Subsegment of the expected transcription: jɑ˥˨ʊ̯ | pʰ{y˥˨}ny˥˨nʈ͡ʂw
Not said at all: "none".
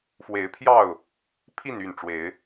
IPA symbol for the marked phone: i˥˨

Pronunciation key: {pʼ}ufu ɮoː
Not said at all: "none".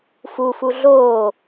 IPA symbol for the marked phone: f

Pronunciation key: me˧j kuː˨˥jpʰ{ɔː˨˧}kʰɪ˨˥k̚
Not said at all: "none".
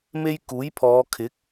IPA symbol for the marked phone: ɔː˨˧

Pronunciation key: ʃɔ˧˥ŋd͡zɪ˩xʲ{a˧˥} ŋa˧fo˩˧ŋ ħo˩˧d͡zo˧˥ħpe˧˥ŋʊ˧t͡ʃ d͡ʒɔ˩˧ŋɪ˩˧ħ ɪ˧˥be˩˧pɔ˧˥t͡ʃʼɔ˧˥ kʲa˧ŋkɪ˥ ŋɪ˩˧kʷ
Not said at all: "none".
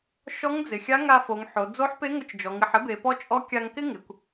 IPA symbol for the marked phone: a˧˥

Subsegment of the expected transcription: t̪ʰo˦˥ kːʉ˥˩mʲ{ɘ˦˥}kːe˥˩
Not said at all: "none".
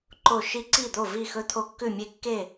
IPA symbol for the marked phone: e˦˥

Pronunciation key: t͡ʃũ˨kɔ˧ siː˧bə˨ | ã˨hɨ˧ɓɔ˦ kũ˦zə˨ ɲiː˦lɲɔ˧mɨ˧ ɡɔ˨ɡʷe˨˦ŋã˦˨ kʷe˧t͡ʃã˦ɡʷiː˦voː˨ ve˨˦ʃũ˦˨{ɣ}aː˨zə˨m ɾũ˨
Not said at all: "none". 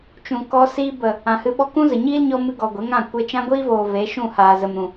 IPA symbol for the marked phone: h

